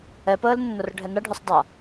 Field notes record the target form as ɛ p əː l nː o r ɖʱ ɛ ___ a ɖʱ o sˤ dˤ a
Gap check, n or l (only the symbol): n